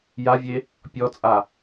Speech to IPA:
j a vʲ e | pʲ ɔ t͡sʼ a

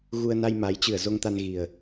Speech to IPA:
ɣ u˧ ə̯ n a˧ j m a˨˦ j t͡ɕ ɨ˧˩ ə̯ z o˧ ŋ t̪ a˧ n ɣ i˨˩ ə̯

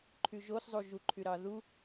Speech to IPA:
ǃʰ y ʒ o s zˤ u ʒ u ǃʰ y ɾ ɑ ð u

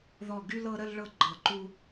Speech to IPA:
ð ɔ˥˧ ɡ y˥ l ɤ˥ ɾ ə˥ l ɭ ɤ˥ ɡ͡ǃ ɤ˧˩ ǃ u˥

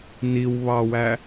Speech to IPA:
n i w β ɑ w æ

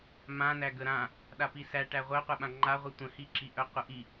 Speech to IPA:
m ã n æ ɡ ə ɾ ã | ɗ a p i s æ ʈ æ ʁʷ œ qʷ ɛ ɓ ã ŋ͡ǃ a ʁʷ i tʷ ə̃ h i ǁ i ʔ œ qʷ ə ʔ i

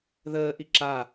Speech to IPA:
ð əː ʔ i ǁ a

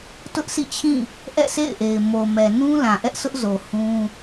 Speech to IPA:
t ʊ˦ ʔ sʰ ḭ˦˨ t͡ɕʰ ĩ˦˨ | ʔ ɛ̰˦˨ sʰ ḛ˦˨ ɪ̯ ʔ e˨ ɪ̯ m o˨ m ɛ˨ n ũ˦ l ã˨ ʔ ɛ˦ ʔ sʰ ʊ˦ ʔ z o˨ h ũ˦

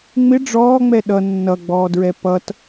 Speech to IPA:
ŋ͡m ɪ ɖ͡ʐ ɔː ŋ͡m ɛ ɗ ʌ nː ʌ ɡ͡b ɔː d ɹ ɛ p ʌ t

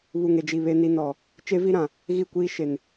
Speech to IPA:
β u˨ ŋ e˨ d͡ʒ i˨ β e˦ n i˦ n ɔ˨ | t͡ʃ e˦ v i˦ ɾ ã˨ | ɣ i˦˨ kʷ iː˦ ʃ e˨ n

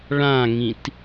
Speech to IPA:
ɭ ã ŋ ĩ t

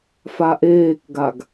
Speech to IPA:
f a ʔ eː k ɡ a ɡ

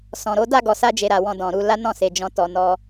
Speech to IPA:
s ɔ̃˨ ɾ o˨˦ d a˦˨ ɡ ɔ˨ s a˧ d͡ʒ e˨ ɾ a˨ w ɔ̃˧ d ɔ̃˨ ɾ u˧ l a˦ n ɔ̃˦˨ s e˨ d͡ʒ ɔ̃˨˦ t ɔ˧ n ɔ˦

